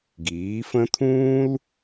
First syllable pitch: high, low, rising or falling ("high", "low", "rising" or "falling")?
rising